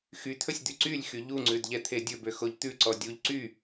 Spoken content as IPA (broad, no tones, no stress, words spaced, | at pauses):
xyt̪ʰɵsʲ d̪yǀylʲxy ʎuŋ͡ǀʉd ʎɛt̪ʰedʲɵbø xoʎt̪ʉǀɔ dʲuʎ ǀy